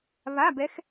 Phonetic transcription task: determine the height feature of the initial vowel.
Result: low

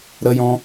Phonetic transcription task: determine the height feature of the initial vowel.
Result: mid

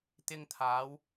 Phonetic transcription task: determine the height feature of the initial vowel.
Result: high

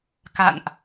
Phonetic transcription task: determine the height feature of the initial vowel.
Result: low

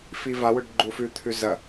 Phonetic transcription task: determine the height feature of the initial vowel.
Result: high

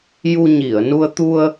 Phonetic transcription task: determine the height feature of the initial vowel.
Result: high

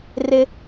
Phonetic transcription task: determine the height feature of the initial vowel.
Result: high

